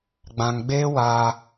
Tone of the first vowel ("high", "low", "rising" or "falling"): low